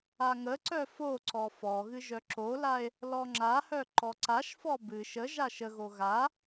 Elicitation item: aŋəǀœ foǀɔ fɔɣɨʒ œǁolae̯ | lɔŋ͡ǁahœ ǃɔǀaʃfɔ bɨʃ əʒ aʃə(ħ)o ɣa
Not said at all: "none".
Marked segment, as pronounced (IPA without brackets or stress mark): ɣ